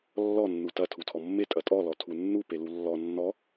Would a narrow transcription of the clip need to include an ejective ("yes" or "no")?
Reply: yes